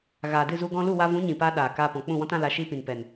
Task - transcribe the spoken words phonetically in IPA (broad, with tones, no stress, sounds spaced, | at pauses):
ɣ aː˨ d ɨ˦˨ z u˧ ɡ ɔ̃˧ l u˦˨ w a˧ v ũ˨˦ ɲ ĩ˨ p aː˧ ɗ aː˨ k aː˧ p ɔ̃˨ k͡p ũ˦˨ w ɔ̃˦ t ã˦ l a˧ ʃ iː˦ p ĩ˨ n p ɛ˨ n